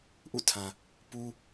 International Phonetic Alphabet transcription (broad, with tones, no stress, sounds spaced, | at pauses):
ʔ ṵ˦˨ tʰ ã˨ | p u˦